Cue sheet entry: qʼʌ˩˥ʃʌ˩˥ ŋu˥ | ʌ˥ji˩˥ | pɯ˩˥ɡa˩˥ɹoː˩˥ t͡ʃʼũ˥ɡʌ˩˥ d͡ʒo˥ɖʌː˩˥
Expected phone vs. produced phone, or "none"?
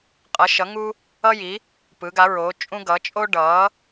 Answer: d͡ʒ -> t͡ʃʼ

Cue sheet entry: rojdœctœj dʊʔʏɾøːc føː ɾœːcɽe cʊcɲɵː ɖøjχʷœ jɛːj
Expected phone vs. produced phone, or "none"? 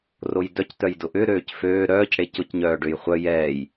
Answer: ɵː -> œː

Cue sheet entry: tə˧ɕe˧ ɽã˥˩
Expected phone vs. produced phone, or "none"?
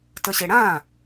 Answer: none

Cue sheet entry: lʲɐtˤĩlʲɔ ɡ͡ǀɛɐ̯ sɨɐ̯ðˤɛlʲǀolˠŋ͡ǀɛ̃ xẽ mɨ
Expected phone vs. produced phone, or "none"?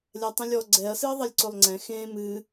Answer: none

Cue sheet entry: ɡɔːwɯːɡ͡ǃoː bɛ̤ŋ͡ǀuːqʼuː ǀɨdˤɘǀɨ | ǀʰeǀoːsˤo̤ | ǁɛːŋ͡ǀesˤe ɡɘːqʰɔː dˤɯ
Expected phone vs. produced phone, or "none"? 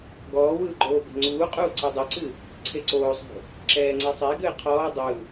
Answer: none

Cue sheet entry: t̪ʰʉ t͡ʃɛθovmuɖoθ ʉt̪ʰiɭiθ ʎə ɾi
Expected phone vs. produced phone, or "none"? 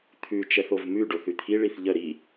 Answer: u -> ʉ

